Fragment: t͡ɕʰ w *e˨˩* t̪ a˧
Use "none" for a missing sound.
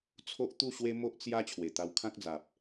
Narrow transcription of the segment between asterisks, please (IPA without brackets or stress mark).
e˨˩